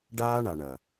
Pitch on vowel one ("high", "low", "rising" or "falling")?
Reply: high